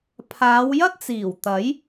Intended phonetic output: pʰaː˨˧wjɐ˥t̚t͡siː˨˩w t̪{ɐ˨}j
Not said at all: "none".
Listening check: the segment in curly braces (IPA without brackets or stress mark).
ɐ˨˥